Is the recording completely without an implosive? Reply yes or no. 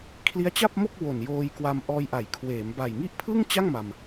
yes